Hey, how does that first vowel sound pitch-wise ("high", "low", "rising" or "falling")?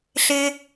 high